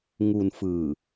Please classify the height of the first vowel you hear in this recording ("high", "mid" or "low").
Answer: high